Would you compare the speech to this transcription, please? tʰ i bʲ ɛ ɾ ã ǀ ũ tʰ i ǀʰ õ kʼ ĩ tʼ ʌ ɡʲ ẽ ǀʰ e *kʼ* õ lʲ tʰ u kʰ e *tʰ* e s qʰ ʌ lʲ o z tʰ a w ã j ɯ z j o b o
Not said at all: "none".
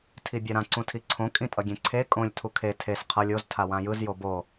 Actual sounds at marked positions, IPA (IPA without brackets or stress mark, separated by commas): kʼ, tʰ